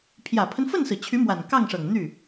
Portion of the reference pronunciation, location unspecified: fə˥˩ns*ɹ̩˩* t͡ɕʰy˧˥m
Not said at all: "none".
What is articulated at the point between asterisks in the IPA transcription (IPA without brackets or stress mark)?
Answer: ɹ̩˩